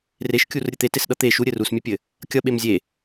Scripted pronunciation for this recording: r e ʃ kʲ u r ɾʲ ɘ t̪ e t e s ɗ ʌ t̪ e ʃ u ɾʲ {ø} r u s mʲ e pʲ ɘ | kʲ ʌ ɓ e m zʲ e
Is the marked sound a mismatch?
yes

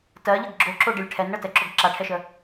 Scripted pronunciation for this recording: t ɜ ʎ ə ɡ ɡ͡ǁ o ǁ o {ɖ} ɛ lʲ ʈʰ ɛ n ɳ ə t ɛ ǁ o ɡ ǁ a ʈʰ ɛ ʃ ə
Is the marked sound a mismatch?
no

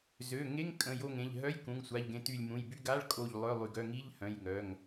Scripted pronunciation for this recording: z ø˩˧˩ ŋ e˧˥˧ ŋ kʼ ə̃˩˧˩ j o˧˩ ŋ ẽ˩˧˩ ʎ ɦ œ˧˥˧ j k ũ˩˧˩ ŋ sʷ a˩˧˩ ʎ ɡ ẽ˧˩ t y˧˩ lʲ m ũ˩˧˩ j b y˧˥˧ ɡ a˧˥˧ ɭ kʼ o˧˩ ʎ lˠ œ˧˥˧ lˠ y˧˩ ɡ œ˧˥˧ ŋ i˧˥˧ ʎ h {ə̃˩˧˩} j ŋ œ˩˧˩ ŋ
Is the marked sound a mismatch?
yes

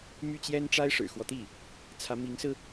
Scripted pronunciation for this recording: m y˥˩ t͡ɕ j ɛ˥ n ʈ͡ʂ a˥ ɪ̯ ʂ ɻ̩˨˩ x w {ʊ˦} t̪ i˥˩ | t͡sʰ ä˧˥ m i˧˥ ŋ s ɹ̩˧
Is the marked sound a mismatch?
yes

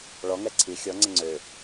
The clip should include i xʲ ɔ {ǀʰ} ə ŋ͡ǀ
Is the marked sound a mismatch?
yes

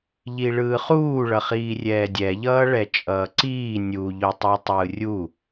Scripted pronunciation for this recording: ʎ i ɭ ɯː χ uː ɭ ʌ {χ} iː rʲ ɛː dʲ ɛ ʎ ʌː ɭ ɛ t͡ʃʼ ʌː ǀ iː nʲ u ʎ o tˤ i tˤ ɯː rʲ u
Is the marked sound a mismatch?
no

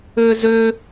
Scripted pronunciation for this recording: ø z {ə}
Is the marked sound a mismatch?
yes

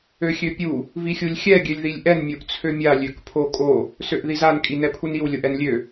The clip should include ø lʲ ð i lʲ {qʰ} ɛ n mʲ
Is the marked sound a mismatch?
yes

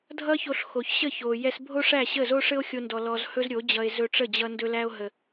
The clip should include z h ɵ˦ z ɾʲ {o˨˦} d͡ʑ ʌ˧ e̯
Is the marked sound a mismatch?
no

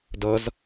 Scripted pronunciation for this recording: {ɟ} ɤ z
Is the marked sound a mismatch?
yes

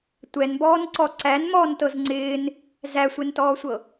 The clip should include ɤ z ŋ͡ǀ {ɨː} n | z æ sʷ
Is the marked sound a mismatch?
yes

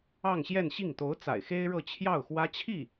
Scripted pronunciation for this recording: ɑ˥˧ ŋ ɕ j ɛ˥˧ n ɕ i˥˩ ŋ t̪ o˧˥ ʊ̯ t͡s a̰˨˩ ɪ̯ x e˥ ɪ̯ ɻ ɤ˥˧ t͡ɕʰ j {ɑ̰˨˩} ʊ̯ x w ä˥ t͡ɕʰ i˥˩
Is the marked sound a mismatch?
yes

